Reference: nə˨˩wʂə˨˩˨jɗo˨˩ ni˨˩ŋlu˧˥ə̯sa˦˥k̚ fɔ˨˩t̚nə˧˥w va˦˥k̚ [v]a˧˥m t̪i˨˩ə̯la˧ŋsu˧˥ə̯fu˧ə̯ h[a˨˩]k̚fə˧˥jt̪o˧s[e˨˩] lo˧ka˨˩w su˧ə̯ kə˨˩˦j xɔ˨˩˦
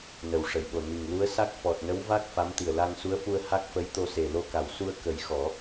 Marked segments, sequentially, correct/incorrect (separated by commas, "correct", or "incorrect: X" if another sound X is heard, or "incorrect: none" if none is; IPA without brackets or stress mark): incorrect: f, incorrect: a˦˥, correct